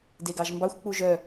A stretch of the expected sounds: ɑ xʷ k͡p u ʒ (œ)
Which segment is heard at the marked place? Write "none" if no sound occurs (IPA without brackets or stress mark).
œ